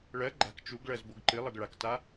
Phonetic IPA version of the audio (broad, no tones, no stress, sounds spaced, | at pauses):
ɭ ɜ ɡ͡ǃ a̤ k t͡ʃ u ɡ ɭ ɜ z b o ɡ ǃ ɨ lˠ ɜ ɡ ɭ a k t a